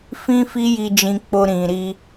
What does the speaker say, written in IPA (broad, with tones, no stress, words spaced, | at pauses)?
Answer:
fĩ˦fi˦ji˧d͡ʒĩ˧ k͡po˧ɾĩ˨ ɾi˧